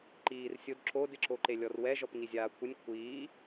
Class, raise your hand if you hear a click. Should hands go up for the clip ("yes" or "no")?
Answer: yes